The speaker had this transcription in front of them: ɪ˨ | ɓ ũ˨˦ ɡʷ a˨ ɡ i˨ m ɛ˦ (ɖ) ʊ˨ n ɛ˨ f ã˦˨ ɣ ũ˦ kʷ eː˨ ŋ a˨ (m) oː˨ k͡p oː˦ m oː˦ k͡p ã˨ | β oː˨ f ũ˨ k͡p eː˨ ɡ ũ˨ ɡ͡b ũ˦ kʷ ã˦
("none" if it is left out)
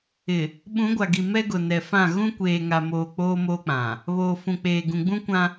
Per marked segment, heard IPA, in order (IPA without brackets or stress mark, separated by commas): ɡ, m